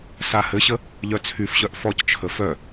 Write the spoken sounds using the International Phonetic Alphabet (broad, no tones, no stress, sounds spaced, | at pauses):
s a h ɘ ɕ ə | ʎ œ t͡sʰ y f ɕ œ ʔ f ɔ c t͡ʃʰ ə f œ